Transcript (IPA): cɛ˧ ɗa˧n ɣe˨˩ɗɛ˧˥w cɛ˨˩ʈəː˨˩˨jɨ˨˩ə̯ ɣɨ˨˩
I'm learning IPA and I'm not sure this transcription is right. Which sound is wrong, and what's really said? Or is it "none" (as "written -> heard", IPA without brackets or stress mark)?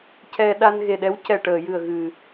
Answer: none